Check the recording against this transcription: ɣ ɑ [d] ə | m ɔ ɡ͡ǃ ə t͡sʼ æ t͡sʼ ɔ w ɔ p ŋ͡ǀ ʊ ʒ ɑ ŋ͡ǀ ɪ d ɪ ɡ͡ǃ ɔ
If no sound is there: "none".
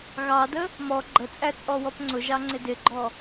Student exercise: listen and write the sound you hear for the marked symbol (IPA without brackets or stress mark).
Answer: d